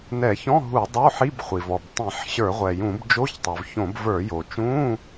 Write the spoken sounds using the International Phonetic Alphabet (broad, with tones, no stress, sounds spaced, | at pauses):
n ɛ˧˩˧ ç ɔ̃˧˥˧ ɦ u˧˩˧ dˤ o˧˥˧ ħ i˧˥˧ b χʷ i˩ v ɔ˩ b tˤ ĩ˧˩˧ ħ ɕ ə˞˧˩˧ ʁʷ ɛ˩ j ũ˧˩˧ b d͡ʒ o˧˥˧ ç tˤ o˩ v ç õ˧˩˧ b v ə˞˧˩˧ j o˩ t͡ʃ ũ˧˥˧